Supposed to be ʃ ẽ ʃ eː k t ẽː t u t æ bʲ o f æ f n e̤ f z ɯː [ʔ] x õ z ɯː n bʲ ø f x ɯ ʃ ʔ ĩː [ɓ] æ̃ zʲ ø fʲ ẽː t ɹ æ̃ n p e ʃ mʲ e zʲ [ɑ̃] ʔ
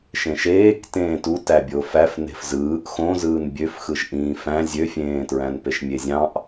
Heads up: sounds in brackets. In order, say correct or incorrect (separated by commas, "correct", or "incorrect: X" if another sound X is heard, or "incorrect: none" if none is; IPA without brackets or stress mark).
correct, incorrect: f, correct